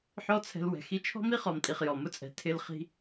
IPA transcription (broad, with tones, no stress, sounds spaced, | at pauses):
ħ ɔ˦ t͡sʰ ɛ̤˧ l w ɛ̤˨ x i˧ t͡ʃʰ ɔ̤˦ m i˦ χ ɔ˨ m tʼ i˨ χ j ɔ˨ m ʊ˧ t͡sʼ ɛ̤˨ tʰ ɪ˧ l χ i̤˧